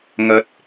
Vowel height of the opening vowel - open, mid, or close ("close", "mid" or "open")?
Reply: open